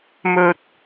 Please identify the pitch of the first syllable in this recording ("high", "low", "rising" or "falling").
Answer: low